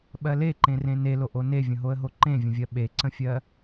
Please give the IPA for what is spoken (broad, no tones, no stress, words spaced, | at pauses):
ɓɜleǃẽrẽ neloʔo nevʲə̃ɦoə̯ɦo ǃẽvʲə̃vʲɜ ɓeǀə̃fʲɜ